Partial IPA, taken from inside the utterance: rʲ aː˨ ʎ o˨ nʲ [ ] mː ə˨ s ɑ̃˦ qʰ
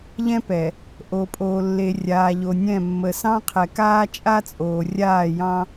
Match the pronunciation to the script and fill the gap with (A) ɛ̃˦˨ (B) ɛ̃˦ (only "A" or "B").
A